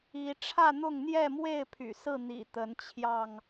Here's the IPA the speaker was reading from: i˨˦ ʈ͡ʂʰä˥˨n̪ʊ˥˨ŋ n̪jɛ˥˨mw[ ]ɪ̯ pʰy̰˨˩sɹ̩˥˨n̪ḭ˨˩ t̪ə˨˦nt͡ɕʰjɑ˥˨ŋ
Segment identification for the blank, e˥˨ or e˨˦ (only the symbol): e˥˨